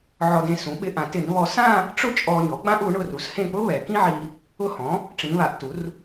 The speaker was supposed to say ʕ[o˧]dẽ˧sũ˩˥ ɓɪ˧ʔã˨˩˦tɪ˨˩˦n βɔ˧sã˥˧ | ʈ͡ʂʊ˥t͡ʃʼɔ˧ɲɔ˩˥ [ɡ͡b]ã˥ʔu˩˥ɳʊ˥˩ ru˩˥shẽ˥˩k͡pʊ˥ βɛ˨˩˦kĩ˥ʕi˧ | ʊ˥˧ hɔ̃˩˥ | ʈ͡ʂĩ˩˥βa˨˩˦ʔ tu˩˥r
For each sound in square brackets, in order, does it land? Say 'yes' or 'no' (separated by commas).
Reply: no, yes